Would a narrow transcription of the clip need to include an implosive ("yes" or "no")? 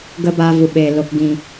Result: yes